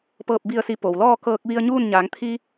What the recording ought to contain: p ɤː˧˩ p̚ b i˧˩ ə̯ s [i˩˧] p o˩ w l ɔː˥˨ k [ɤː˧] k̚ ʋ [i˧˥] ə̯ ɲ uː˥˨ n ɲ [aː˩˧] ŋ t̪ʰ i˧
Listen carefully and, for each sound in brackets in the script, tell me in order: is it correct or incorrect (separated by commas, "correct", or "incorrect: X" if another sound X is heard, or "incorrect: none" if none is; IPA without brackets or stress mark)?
correct, correct, incorrect: i˧, correct